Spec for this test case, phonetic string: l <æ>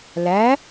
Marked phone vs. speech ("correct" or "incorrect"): correct